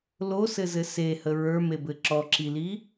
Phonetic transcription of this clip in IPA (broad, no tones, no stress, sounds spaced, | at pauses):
l o s ɘ z ɘ s e h ə ɹ ə˞ m e b ɘ ǁ ɔ ǁ i l i